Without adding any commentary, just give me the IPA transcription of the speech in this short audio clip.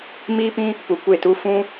m iː˦ p ĩ˦ | p u˧ kʷ e˦˨ t u˦ f ũ˦

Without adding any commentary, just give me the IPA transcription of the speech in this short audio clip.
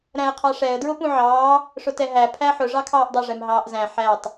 ɾ æ̃ ə̯ qʰ ɑ ʂ ɛ ə̯ d ɹ ʊ p ũ ʕ ɑː | ʂ ʊ t ɛ ɦ æ pʰ æ ħ ʊ ʐ ɑ kʰ ɑː ʔ dˤ ɛ ʐ ɛ m ɦ ɑː ʔ z æ̃ ħ æ tˤ

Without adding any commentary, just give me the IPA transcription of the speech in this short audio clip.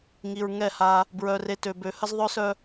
ŋ i˨ ɹ ŋ ɛ˦˨ h a˦ | b ɹ œ˨ r e˨ t ø˨ b ø˨˦ h ə˦ z ðˤ œ˦ s œ˦

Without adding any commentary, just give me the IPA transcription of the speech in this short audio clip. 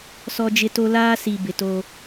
s ɔ˦ d͡ʒ ɪ˦ t o˦ l aː˦ s i˨ b ɪ˨ t oː˦

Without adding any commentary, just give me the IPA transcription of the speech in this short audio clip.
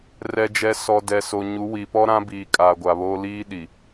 r ɛ˨ d͡ʒ ɛ˨ s ɔ˨ d ɛ˨ s o˨ ɲ u˨˦ w i˨ p ɔ˦ ɾ ã˦ b iː˨ kʼ a˨ ɡʷ a˨ β oː˦ l iː˦ ɗ i˨

